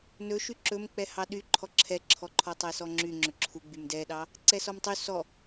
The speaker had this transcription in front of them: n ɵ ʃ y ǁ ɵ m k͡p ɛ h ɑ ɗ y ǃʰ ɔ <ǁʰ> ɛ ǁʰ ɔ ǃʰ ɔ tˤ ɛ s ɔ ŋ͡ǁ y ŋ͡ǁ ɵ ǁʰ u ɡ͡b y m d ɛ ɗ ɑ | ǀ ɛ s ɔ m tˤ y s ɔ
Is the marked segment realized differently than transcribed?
no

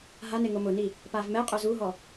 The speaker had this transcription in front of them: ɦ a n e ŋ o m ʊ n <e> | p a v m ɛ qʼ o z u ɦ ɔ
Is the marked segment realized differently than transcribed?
yes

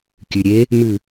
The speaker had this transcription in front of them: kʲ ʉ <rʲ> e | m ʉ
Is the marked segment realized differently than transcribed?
yes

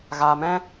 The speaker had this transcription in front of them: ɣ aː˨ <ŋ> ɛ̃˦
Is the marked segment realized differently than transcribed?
yes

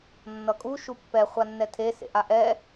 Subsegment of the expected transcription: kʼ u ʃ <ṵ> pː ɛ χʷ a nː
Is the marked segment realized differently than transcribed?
yes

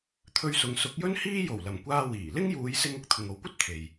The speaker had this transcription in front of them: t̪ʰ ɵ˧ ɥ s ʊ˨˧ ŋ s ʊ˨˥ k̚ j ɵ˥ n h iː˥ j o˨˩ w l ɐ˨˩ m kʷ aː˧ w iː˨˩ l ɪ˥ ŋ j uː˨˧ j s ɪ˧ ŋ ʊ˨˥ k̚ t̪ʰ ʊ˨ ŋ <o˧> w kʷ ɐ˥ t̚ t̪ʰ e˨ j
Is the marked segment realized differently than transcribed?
yes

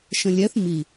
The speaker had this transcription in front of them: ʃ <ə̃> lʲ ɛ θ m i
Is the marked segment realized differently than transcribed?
no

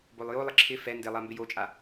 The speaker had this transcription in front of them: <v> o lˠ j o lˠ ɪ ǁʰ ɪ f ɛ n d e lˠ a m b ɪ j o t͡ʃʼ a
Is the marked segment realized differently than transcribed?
yes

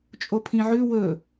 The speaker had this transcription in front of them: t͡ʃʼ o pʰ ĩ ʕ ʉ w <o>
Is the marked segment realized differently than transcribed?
yes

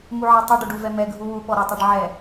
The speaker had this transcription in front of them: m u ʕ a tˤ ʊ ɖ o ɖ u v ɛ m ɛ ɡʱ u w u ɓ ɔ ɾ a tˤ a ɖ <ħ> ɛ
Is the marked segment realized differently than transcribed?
yes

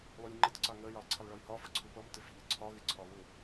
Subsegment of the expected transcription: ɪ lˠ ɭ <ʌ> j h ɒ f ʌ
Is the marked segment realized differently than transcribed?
yes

